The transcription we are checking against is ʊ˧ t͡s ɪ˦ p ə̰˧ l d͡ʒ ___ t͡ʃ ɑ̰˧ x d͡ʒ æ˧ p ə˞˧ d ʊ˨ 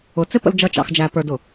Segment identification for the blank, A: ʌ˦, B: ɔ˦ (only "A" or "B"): A